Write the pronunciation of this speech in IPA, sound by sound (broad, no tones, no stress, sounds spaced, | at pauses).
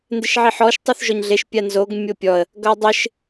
n d ɪ ʃ ʕ i ħ ɔ ʃ tˤ u θ ʒ ɔ ɲ ɮ e ʃ pʲ a n z o ɡ mʲ o pʲ ɔ ə̯ | ɡ ʌ dˤ ɪ ʃ